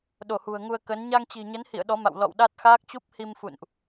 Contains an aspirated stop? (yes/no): no